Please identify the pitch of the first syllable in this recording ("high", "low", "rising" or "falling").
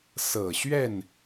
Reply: low